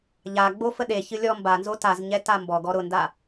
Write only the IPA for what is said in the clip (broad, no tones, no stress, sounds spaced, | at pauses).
ʎ a ɡ͡b o f ə ɗ e ç ɨ lʲ ɔ m b a n z o t a z ɲ ɛ t a m b ɔ ɡ ɔ ɾ ʊ n d a